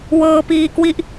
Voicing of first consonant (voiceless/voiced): voiced